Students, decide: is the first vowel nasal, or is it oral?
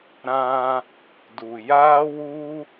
nasal